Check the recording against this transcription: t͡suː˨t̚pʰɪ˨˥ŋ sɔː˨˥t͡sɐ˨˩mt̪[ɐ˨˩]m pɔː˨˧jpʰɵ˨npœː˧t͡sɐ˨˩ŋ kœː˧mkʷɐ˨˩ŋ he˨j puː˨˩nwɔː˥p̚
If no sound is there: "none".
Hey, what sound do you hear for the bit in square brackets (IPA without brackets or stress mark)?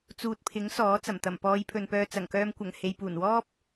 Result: ɐ˨˩